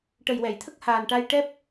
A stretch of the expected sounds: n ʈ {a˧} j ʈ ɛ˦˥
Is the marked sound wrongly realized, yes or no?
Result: no